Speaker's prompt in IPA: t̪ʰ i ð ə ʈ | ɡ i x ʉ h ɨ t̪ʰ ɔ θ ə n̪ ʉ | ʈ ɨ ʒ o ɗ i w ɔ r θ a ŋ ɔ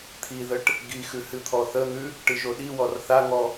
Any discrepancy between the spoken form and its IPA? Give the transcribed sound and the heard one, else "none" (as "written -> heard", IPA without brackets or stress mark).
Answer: none